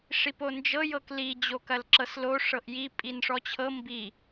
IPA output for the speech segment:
ʂipond͡ʒɤ jɤkli d͡ʑokɐlǁɤslo ʂɤʔji pʼinʂɔt͡ɕʰɤ mbi

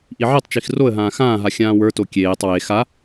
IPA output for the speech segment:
ʔiʕitˤt͡ʃix roə̯ɦãː xãːɦa xʲãːwə˞to kʲeːtˤ we xa

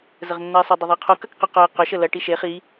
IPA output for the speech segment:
zəʁnːɐɪ̯sˤʏ dˤʊðˤiqʰo kɐkqʏ qœɪ̯ qʏʃə lɐʈi ʃe χi

